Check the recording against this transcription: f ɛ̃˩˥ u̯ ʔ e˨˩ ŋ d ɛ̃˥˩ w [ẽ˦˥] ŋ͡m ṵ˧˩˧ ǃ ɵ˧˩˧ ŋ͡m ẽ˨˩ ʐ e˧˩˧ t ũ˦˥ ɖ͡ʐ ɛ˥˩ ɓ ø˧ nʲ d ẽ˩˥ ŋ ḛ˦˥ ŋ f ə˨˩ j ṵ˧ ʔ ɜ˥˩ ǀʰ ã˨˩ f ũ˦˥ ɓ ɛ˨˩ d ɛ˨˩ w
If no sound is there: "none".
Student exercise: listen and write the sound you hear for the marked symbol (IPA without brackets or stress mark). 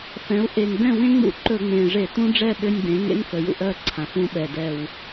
ẽ˦˥